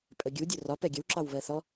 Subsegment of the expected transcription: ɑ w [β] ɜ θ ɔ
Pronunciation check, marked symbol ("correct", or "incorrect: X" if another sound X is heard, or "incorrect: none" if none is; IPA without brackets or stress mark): correct